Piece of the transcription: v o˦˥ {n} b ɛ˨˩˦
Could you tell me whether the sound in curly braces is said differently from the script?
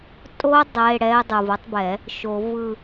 yes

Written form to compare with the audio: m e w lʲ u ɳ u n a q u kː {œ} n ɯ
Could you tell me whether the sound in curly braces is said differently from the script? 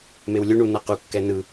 yes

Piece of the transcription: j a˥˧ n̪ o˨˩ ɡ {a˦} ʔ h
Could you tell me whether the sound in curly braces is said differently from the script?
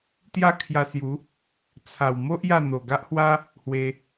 no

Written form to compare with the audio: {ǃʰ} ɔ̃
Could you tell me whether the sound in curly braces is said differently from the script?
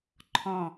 no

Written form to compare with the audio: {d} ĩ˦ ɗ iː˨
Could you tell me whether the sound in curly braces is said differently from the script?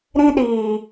yes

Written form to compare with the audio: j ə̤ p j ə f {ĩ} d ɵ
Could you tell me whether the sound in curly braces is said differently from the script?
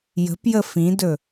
no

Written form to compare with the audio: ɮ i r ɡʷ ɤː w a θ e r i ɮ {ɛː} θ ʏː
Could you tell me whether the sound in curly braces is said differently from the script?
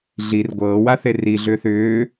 yes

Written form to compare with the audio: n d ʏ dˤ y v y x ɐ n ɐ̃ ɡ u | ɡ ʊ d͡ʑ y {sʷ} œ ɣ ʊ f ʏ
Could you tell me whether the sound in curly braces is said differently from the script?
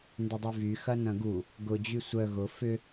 no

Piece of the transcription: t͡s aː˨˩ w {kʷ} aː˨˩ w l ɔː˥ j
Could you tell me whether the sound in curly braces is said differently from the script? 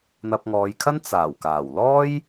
yes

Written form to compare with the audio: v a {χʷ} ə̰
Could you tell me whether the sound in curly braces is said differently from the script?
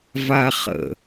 yes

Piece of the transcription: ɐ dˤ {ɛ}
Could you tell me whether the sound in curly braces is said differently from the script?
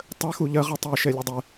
no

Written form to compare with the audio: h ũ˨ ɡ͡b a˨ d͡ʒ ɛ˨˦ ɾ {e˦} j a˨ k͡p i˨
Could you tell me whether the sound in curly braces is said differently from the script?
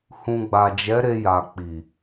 yes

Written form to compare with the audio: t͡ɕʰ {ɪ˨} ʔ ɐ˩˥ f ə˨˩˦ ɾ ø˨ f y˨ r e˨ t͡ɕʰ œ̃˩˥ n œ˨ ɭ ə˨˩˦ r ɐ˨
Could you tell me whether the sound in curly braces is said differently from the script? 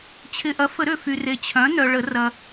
no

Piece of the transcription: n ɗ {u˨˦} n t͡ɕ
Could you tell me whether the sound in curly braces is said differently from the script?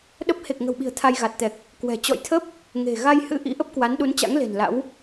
no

